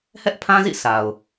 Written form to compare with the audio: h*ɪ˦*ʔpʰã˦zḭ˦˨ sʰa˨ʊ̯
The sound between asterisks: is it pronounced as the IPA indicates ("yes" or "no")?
no